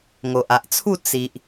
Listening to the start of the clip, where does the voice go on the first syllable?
low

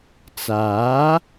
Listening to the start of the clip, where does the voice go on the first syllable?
rising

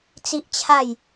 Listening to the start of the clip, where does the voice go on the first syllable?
high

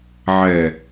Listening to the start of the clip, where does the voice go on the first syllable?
low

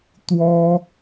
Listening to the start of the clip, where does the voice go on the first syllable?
high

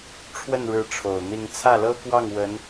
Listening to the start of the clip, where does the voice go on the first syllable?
falling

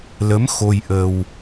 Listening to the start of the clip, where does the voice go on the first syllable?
rising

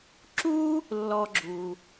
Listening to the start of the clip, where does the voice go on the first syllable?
high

